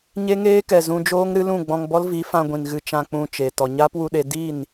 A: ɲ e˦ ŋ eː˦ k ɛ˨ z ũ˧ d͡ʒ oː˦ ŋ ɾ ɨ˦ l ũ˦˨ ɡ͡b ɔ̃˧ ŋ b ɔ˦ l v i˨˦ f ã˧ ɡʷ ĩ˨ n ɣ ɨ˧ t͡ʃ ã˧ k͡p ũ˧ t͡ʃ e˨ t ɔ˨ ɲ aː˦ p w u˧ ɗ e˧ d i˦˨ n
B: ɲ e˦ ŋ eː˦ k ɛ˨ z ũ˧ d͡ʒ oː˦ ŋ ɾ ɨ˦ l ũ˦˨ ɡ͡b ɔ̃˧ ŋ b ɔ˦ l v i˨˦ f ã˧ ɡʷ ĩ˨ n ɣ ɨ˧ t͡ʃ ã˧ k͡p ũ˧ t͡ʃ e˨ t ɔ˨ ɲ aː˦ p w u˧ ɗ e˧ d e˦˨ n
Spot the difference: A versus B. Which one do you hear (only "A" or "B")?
A